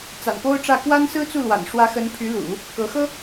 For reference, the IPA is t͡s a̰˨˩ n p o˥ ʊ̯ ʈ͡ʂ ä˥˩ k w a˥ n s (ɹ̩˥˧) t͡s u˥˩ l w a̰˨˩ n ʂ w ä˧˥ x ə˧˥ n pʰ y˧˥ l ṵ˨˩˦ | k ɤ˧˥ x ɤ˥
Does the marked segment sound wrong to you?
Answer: yes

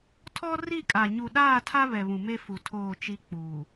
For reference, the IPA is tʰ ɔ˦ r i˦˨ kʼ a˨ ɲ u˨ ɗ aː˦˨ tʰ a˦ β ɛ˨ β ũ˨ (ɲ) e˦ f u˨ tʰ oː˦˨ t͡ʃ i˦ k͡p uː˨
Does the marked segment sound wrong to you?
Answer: yes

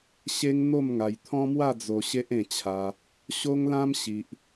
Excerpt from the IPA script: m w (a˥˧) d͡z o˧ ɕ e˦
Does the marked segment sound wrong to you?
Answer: no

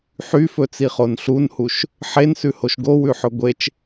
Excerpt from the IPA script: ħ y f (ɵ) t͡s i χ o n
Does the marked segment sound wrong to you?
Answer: no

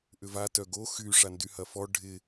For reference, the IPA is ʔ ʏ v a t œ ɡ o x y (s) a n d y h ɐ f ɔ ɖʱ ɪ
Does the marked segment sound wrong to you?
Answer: yes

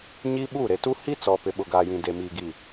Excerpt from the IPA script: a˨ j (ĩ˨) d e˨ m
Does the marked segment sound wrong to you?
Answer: no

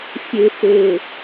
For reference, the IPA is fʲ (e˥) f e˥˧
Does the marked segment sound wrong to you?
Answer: no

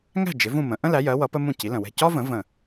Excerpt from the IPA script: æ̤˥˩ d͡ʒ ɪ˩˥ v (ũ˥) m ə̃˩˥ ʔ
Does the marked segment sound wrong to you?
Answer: yes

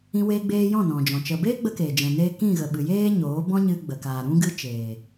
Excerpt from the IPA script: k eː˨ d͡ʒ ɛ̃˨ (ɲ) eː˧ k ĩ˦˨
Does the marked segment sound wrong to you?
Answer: yes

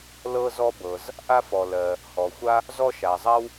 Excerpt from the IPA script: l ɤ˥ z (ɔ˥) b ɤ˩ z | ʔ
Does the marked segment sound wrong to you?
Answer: no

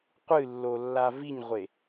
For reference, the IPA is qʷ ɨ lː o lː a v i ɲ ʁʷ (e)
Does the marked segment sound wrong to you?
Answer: no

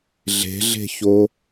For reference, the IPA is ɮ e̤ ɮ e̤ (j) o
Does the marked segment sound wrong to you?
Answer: yes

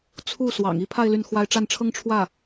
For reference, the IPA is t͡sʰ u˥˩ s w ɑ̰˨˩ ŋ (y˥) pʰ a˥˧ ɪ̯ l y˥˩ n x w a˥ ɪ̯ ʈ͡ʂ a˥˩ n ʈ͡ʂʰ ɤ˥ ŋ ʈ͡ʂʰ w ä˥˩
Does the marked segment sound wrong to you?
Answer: yes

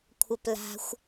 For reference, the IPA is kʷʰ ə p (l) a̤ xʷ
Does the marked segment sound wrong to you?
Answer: no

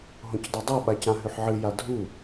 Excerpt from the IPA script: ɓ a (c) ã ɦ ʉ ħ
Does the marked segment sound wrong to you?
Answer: no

